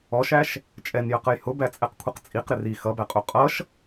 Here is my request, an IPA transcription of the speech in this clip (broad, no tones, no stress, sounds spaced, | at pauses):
ɔ ʃ æ ʃ | t͡ʃʼ ɛ n j ə q ə j h ʊ b æ t͡sʼ ɛ q kʷʰ ʌ q t͡sʼ i q ɾ ɪ r i x ʌ b æ qʼ u qʼ ʌ ʃ